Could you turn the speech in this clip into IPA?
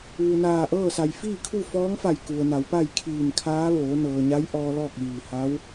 ʋ u˩ n aː˧˩ ʔ ɤː˥˨ s a˩ j f iː˥˨ kʰ u˥˨ f ɔː˧˥ ŋ f a˧˩ j k u˩ ə̯ n a˩˧ w p a˥˨ j kʰ iː˧˩ n kʰ aː˧˥ ʋ oː˩˧ n ɤː˩ ɲ a˧˥ j ʔ ɔː˧ l ɔː˥˨ k̚ ʋ iː˧˩ h a˧˥ w

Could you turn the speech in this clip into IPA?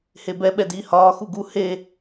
h e b ɛ ɓ ɛ d iː h ɒː x u ɡ u h e

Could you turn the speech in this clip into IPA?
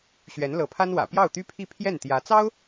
ɕ ɥ ɛ˧˥ n l ɤ˧˥ pʰ a˥ n w ä̰˨˩ p j ɑ˥˩ ʊ̯ t̪ y˥ pʰ i˥˧ pʰ j ɛ˥˩ n t̪ j ä˧˥ t͡s ɑ˥ ʊ̯

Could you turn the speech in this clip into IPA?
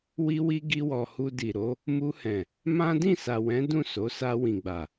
w i˧ w i˧ ɡ i˧ w ɔ˨ h u˧ d i˨ ɾ o˨˦ | m u˧ h ɛ̃˨ | m ã˦ d ĩ˦˨ s a˨ w ɛ̃˨˦ d ũ˦˨ s o˨˦ s a˧ w ĩ˨ ɡ͡b a˨

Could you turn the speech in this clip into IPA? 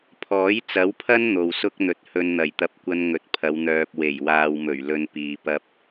pʰ ɔː˨˥ j t͡s ɐ˨˥ w pʰ ɐ˥ n n̪ o˨ w s ʊ˥ k̚ n̪ ɵ˨ t̚ h ɵ˧ n n̪ ɐ˨˩ j t̪ ɐ˨˥ p̚ kʷ ɐ˧ n ŋ ɵ˨ t̚ pʰ ɐ˨˧ w n̪ œː˨ p̚ w e˨˩ j w aː˨ w m ɵ˨˩ ɥ l ɵ˧ n p iː˨ p ɐ˥ p̚

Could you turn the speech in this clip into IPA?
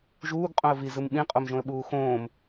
ʒ uː ɡ qʼ õ ə̯ v i z ɯ m ɓ ĩ qʼ o m ʒ õ ə̯ ɓ uː x õː m

